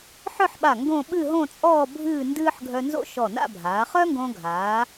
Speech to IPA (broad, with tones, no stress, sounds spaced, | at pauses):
ħ œ˥˧ ħ ɓ a˧˩ ŋ ɡ õ˥˧ ɓ ɨ˥˧ ɦ õ˥˧ t͡sʼ ɔː˥˧ bʱ ɨː˥˧ n d ɨː˥ ħ ɡʱ œ˧ n z o̰˥˧ ʃ ɔ˧˩ n a̰˥˧ bʱ aː˩˧ χ œ˥ ŋ ɡ õ˧ ɡʱ aː˩˧